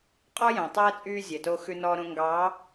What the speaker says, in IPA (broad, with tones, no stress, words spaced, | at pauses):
qʼɔ˦jæ̃˨tˤɛː˦ t͡sʼyː˦zʲɛ˨to˦ xʉ˦nɔː˦ɾõ˦ ŋɡɑː˨˦